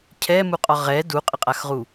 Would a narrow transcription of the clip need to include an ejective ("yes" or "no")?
yes